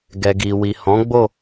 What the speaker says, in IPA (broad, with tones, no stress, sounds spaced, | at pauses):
ɡ ɛ˨ ɡ i˨ w i˨ h ɔ̃˨˦ ɡ͡b o˦˨